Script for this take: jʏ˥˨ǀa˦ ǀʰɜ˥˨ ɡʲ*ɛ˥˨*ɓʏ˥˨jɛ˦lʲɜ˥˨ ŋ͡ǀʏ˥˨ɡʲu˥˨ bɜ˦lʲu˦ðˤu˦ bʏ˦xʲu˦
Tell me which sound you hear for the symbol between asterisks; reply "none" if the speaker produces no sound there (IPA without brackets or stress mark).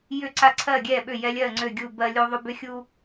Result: ɛ˥˨